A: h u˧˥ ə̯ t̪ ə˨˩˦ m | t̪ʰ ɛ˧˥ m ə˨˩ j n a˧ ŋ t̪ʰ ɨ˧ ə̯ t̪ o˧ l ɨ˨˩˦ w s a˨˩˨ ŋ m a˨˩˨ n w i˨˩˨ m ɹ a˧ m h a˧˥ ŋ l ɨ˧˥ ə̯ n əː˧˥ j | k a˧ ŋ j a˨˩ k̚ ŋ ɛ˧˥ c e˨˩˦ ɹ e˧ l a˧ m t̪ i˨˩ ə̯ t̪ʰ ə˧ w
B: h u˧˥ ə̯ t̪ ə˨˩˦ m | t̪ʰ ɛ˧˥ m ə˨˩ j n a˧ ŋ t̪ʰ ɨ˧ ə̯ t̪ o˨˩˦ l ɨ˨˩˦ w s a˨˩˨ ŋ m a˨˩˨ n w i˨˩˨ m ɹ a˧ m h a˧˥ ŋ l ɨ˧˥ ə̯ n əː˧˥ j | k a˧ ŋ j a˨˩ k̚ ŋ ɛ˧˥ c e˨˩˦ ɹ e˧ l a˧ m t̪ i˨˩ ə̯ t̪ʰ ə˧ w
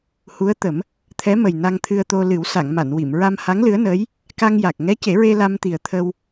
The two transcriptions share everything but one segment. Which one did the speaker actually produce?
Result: A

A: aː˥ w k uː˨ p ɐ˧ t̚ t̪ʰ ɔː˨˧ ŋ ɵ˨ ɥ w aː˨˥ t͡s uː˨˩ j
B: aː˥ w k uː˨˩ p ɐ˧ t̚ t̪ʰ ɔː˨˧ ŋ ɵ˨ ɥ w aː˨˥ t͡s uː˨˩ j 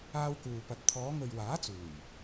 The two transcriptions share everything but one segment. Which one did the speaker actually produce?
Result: A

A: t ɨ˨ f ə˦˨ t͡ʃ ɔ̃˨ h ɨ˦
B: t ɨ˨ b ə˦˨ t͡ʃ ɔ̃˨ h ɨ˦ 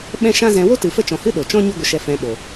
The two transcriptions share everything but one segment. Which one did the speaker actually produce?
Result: A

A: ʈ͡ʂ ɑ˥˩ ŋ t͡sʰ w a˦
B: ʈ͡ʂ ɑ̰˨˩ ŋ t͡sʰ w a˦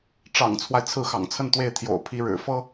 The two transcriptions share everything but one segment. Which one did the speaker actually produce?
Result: B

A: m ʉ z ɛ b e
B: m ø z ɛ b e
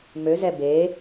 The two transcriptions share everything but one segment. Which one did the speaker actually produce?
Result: B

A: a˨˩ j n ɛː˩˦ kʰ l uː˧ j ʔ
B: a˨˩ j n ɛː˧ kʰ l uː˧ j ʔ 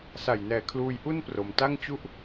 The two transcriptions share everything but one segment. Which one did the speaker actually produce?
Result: A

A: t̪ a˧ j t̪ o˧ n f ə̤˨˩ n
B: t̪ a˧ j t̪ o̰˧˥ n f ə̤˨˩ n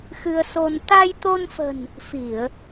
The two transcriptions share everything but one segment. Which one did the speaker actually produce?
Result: A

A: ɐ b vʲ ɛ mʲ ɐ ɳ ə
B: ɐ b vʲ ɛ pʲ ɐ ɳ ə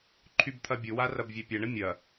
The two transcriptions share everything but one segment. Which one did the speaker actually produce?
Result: B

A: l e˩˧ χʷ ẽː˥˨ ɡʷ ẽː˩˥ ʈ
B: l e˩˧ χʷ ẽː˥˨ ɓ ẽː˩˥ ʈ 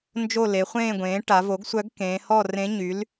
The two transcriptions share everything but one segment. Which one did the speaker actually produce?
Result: A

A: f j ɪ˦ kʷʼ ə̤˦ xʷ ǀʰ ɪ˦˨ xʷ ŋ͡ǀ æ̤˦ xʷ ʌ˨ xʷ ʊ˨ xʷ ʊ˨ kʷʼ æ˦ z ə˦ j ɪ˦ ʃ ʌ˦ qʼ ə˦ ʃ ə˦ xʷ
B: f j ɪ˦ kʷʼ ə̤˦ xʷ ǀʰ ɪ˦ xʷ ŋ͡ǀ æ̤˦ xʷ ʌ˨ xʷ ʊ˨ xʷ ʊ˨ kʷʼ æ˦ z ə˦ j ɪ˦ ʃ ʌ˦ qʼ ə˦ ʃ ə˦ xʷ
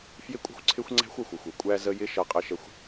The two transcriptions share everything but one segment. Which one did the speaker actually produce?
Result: B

